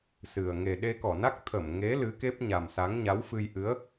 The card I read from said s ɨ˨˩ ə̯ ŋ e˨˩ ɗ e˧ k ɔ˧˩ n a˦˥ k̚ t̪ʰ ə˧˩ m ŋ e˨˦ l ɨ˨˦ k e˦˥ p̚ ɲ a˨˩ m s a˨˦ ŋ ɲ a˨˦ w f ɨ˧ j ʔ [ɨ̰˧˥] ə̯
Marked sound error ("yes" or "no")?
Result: yes